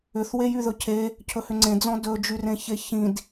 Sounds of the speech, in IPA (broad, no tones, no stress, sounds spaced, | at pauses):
ʏ θ w e j y ð ɵ cʰ e | cʰ ɵ h ʏ ŋ͡ǀ ẽ d͡z ɔ̃ d ɵ d͡ʒ y r ẽ ç e ç ĩ d